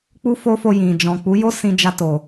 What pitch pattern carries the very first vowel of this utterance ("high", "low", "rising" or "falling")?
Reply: high